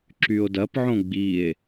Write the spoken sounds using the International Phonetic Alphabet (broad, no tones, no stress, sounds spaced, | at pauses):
ǁ y o̯ d ɐ p ʕ õ ɡ͡b i e̯